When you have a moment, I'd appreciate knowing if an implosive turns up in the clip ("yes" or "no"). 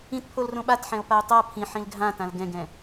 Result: yes